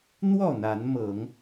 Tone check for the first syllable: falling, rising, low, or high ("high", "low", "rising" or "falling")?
falling